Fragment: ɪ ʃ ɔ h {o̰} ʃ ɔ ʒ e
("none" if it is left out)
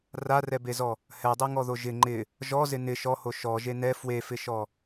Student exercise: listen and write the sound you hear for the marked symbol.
o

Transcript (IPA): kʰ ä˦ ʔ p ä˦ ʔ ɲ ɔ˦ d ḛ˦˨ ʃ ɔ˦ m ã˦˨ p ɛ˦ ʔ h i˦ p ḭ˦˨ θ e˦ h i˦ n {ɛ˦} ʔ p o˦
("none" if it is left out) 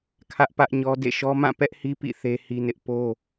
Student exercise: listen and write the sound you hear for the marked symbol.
ɪ˦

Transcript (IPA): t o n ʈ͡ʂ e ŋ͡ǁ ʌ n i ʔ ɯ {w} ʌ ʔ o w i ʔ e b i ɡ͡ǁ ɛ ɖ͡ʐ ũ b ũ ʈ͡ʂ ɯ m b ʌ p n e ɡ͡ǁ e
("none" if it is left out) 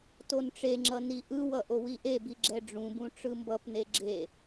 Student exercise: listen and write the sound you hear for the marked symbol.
w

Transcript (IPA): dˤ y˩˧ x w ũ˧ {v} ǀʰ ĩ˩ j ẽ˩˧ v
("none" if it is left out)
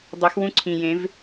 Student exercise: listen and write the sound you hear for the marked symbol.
none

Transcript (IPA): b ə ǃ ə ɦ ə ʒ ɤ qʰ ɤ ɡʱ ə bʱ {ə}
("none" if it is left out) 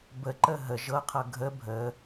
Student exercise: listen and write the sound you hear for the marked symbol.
ə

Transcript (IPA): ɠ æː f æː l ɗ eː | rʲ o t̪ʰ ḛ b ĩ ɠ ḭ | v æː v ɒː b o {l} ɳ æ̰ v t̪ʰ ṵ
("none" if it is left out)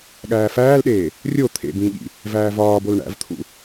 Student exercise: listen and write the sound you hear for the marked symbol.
l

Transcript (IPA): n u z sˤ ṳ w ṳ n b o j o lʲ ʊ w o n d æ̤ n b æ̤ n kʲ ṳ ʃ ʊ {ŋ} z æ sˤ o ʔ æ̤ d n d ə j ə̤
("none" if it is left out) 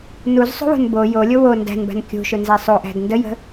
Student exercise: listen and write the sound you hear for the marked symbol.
n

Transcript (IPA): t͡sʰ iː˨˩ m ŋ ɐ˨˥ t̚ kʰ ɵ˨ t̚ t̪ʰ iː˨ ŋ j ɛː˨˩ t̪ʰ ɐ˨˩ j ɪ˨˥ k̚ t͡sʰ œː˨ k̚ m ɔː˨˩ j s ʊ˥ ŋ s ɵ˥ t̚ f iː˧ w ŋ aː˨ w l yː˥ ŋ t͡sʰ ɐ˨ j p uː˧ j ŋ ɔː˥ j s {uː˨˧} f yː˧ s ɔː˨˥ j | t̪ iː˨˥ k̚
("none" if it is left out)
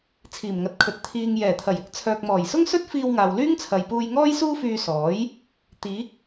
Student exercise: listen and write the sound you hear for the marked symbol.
uː˥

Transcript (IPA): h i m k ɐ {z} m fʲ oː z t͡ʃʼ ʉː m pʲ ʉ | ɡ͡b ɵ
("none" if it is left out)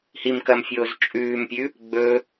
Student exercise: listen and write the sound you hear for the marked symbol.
none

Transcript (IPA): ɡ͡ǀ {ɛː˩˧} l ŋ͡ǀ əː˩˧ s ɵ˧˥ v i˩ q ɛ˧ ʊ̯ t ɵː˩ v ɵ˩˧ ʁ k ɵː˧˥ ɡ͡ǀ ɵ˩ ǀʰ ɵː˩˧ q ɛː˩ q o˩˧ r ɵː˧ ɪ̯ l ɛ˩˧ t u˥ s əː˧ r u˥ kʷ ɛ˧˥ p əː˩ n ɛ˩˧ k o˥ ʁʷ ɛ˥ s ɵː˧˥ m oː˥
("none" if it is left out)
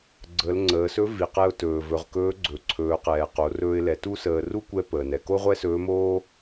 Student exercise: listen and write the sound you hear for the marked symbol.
əː˩˧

